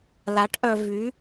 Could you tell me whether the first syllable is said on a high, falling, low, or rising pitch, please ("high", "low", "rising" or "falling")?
rising